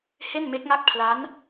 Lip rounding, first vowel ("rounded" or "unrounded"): unrounded